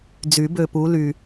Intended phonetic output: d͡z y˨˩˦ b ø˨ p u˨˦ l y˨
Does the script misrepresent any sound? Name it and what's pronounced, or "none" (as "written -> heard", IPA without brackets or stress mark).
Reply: none